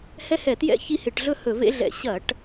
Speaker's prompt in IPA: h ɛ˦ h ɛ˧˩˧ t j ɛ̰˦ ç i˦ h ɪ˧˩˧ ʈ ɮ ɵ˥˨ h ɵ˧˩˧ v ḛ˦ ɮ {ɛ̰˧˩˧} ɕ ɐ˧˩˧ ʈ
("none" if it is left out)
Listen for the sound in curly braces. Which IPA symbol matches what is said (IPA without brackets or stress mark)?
ɛ̰˧˩˧